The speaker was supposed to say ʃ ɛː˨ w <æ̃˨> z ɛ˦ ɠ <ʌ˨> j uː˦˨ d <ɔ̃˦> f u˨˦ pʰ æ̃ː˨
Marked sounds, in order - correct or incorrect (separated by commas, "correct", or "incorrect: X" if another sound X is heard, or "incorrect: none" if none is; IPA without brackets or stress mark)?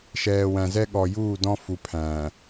correct, incorrect: ɔ˨, correct